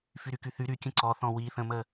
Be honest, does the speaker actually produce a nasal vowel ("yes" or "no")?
yes